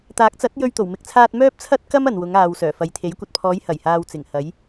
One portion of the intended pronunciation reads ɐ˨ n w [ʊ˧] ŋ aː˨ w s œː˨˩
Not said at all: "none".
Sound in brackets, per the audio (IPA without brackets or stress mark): ʊ˨˧